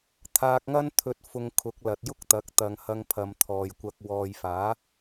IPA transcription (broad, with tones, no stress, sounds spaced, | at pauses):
t̪ʰ aː˧ k̚ ŋ ɐ˥ n t̪ʰ ɵ˧ t̚ f ʊ˧ ŋ kʰ ʊ˨˥ k̚ l ɐ˨ t̚ j ʊ˥ k̚ t̪ ɐ˨˥ k̚ t̪ ɐ˨˧ ŋ h ɐ˧ ŋ pʰ ɐ˨˧ m t̪ʰ ɔː˨ j kʷ ɐ˧ k̚ w ɔː˨ j f aː˨˥